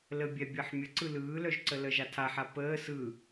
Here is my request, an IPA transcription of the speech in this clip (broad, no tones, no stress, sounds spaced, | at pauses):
l ə bʲ ɛ bʲ əː ħ mʲ ə ǀ ɯ l ɯː l œ ʒ ǀ ə l ə ʒ a tʰ a ħ a p əː s ɯ